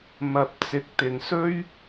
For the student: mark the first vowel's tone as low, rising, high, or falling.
low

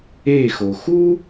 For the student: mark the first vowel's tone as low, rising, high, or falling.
falling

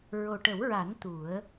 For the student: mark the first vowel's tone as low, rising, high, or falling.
low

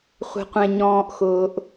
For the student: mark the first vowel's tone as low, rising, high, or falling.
low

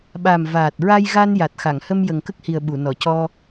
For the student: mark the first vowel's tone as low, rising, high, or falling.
low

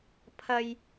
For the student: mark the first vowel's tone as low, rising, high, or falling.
high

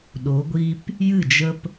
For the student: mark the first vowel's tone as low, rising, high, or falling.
rising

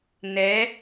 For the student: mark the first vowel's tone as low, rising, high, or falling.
rising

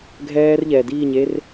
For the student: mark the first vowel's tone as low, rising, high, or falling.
high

